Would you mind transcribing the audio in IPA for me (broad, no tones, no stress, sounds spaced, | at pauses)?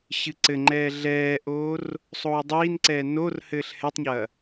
ɕ ɨ ǀ ɘ ŋ͡ǃ ɛː ɮ ɛː ʔ oː r | sˤ oː dˤ iː n ǀ ɛː n o r h ɘː ɬ h ɛ tˤ ɲ ɐː